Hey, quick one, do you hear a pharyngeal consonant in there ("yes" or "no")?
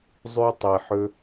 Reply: yes